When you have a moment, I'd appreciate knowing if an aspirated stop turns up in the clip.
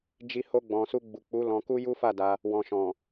no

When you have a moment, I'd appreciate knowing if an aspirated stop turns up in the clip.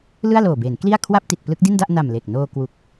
yes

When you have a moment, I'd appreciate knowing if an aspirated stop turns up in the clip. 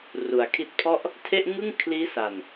yes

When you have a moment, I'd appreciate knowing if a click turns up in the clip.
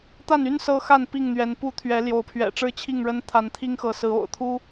no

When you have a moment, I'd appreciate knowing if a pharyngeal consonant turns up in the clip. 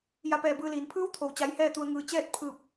no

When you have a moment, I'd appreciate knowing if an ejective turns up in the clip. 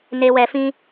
no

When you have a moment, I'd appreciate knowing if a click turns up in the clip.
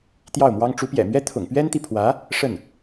no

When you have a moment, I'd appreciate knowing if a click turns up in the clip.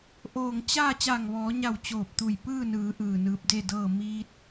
no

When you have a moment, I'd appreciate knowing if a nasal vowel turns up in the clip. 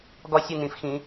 yes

